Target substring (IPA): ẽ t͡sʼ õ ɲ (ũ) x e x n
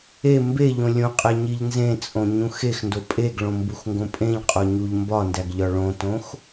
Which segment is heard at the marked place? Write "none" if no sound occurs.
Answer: ũ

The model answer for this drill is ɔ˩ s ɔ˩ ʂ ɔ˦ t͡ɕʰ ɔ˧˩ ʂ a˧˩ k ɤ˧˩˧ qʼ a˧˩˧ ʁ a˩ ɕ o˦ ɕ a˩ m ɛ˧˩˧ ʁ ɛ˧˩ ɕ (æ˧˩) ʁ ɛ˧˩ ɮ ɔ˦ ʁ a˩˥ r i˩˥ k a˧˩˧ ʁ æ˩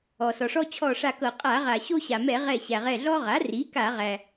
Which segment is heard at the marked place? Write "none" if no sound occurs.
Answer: æ˩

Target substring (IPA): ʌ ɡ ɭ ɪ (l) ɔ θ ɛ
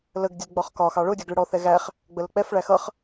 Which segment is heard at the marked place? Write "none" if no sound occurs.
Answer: ɽ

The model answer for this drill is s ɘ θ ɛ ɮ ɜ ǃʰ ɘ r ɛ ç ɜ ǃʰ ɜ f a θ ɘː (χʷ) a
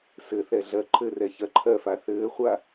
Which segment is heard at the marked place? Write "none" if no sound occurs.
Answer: χʷ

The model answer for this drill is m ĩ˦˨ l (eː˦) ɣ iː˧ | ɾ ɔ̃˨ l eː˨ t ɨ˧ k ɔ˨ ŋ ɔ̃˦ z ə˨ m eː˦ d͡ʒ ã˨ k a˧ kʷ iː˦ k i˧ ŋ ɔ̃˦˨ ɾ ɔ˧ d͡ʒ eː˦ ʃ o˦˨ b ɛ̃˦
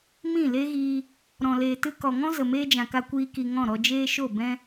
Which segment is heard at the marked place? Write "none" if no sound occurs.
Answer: e˦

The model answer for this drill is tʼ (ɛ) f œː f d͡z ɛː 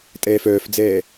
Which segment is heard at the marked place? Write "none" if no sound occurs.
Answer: ɛː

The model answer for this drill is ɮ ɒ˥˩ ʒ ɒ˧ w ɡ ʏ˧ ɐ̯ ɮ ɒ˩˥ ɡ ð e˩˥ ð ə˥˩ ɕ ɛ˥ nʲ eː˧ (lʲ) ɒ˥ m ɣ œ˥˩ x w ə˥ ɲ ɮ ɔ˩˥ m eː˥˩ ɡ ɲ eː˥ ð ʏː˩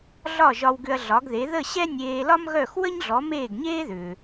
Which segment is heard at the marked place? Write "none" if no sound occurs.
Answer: l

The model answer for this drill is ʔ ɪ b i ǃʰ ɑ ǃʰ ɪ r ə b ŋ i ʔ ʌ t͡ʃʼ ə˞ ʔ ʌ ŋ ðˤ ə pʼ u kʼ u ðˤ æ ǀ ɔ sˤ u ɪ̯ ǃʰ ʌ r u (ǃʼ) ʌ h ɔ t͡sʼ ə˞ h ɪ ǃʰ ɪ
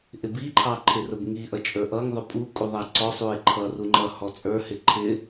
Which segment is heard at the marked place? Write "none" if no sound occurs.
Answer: ŋ͡ǃ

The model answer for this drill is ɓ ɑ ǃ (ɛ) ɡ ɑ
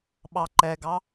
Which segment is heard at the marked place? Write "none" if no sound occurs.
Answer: ɛ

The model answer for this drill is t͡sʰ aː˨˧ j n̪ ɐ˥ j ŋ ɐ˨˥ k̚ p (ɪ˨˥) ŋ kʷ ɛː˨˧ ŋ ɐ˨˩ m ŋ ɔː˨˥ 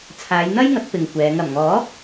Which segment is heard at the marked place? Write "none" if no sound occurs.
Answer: ɪ˨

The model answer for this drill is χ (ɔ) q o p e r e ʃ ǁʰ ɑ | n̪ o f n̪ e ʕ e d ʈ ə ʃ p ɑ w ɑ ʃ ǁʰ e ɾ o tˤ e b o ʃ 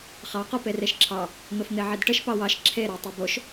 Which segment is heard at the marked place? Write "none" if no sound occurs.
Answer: ɑ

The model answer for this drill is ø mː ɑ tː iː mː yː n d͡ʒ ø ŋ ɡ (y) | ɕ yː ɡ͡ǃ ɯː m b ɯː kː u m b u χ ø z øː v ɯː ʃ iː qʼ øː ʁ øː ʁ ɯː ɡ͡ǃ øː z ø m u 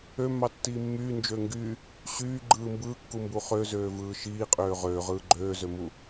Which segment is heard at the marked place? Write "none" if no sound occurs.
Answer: y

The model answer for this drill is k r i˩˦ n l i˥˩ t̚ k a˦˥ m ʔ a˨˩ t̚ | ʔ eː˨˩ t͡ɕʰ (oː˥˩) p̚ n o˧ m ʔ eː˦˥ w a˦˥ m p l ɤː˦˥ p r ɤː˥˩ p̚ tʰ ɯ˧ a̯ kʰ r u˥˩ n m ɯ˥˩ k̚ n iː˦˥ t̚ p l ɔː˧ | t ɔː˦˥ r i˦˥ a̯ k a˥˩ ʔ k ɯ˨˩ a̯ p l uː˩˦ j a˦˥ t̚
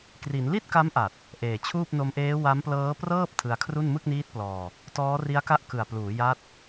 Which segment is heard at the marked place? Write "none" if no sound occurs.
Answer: uː˥˩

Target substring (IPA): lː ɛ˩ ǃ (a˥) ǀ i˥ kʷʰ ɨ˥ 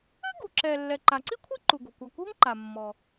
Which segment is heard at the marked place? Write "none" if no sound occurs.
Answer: a˩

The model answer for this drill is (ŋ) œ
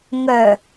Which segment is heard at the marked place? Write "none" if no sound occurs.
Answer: ŋ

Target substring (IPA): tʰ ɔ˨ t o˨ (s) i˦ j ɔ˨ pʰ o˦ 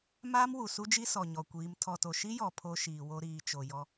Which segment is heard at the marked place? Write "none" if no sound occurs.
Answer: ʃ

